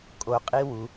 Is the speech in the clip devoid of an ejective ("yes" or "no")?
no